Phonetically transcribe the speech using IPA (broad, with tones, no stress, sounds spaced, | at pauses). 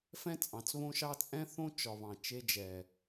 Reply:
f ɛ̃˦ t͡sʼ ɑ̃˨ t͡s β õ˦ ʃ ɑ˦ t͡sʼ ɛ̃˦ θ õ˦ t͡ʃ ɒ˨ β ɑ̃˨ t͡ʃ e˦ d͡ʒ ɛ˨